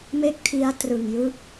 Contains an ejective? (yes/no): no